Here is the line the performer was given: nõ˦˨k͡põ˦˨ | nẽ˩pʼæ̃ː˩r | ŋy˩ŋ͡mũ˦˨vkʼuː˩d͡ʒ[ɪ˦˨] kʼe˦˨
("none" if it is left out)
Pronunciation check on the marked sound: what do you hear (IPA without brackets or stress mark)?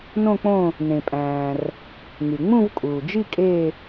i˦˨